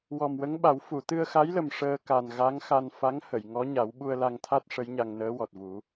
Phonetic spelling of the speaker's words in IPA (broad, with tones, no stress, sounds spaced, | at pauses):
w ɔ˨˩ m w ə˧˥ ŋ ɓ a˨˩˦ w f u˨˩˨ t̪ ɨ˧ ə̯ x a˧˥ j l ə˨˩ m ʂ əː˧ k a˨˩ n ɣ a˧˥ ŋ x a˧ n f a˧˥ ŋ h ə˨˩˨ j ŋ ɔ˧˥ ɲ a˨˩˦ w ɓ u˧ ə̯ l a˧ ŋ t̪ʰ a˦˥ t̚ ʂ ə˧˥ j ɲ a˧ ŋ n əː˧˥ w ɔ˨˩ t̚ v u˨˩˦